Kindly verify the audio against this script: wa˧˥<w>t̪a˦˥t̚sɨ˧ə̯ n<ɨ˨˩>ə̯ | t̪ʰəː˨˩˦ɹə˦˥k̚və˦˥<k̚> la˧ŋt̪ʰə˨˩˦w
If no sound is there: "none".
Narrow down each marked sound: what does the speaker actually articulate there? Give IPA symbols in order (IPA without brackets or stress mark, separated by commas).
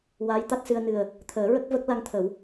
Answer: j, ɨ˨˩, k̚